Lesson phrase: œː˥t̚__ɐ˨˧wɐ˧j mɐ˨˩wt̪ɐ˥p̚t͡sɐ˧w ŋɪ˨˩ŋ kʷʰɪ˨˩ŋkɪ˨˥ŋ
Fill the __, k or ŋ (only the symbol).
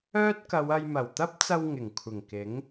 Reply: k